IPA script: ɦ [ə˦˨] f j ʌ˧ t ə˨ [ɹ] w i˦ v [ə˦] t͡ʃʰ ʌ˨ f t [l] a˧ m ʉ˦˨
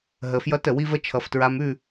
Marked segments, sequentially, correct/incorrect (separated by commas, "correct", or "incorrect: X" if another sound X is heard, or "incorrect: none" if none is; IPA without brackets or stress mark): incorrect: ə˨, incorrect: none, correct, incorrect: ɹ